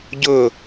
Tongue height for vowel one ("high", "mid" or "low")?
high